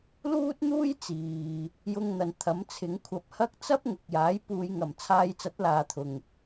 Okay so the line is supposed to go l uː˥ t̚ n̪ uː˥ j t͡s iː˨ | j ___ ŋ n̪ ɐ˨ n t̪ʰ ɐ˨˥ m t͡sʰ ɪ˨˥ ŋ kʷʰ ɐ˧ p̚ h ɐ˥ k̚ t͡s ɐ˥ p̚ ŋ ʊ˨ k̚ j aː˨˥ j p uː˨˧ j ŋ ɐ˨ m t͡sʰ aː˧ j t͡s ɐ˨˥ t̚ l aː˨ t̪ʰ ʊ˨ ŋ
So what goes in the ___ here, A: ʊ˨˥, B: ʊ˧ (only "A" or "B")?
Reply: B